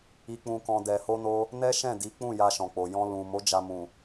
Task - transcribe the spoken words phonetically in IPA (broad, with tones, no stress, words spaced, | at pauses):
i˧k͡pũ˧kɔ̃˧ dɛ˨ho˧no˧ | nɛ˦ʃɛ̃˦˨di˨˦ k͡pũ˦˨ja˧ʃɔ̃˨k͡po˨ jɔ̃˧ lũ˨ mo˨˦ d͡ʒa˧mũ˨